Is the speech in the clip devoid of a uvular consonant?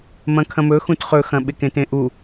no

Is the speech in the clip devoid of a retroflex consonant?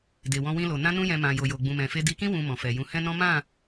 yes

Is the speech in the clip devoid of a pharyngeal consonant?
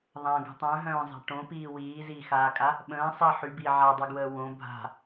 no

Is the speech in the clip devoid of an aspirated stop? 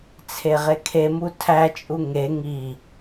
no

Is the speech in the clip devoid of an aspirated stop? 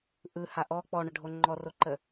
yes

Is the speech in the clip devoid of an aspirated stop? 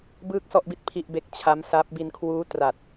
no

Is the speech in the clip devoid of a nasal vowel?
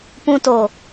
no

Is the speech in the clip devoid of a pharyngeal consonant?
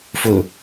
yes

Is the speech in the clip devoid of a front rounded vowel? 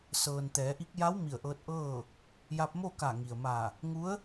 yes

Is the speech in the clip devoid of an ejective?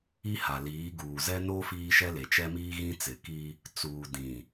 yes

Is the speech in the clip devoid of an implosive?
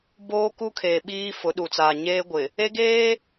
no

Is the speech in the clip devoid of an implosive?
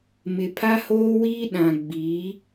no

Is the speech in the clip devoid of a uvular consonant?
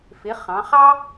no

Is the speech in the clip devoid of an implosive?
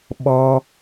no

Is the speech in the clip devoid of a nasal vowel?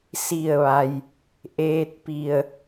yes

